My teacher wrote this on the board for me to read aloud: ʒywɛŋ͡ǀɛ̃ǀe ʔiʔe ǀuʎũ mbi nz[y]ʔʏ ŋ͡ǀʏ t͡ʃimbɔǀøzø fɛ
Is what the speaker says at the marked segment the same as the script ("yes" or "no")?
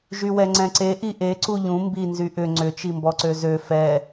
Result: yes